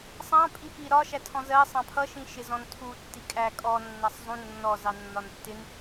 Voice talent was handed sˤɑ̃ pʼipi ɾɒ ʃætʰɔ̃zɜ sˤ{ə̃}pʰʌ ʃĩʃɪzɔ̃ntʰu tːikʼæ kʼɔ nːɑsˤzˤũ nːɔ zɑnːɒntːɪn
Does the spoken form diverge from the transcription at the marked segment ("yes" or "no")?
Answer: yes